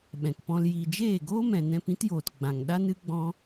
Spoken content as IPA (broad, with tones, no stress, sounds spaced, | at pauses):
ɓ ɛ̃˨ k p ɔ̃˧ l j i˨ d͡ʒ eː˦˨ ɡ oː˦ m ɛ̃˨ n ɛ̃˧ p ĩ˦ t j oː˨ t ɡ͡b ã˨ ŋ ɗ a˦ n ɨ˦ ɡ͡b ɔ̃˦